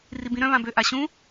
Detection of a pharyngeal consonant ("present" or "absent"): absent